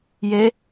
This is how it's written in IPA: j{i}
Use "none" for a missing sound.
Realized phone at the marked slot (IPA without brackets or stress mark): e